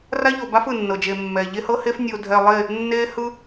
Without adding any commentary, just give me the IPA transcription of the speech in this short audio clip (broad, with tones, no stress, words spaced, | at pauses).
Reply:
ra˦ʎo˨ba˦f ɯ˨nːɤ˨d͡ʒe˨mːɛ˨ ʎe˦hɤ˦he˦f nʲo˨dʱɛ˨ lˠe˦˨ | nːe˦hɯ˦